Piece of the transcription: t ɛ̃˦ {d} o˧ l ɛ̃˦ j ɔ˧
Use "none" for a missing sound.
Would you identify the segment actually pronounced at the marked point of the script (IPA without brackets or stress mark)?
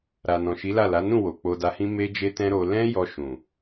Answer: ɾ